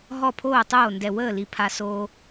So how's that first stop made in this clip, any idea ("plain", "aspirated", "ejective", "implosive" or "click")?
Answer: aspirated